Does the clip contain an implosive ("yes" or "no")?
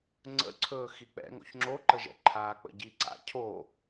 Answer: no